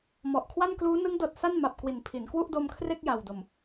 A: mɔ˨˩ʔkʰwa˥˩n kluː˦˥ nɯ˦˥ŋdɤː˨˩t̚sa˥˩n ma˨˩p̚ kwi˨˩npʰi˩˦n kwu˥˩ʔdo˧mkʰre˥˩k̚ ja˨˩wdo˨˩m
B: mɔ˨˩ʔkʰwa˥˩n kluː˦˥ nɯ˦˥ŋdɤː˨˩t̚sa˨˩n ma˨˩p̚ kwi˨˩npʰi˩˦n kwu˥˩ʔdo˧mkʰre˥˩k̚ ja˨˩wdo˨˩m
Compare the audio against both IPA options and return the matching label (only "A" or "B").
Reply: A